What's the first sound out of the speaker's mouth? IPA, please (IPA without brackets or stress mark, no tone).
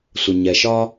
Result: sʷ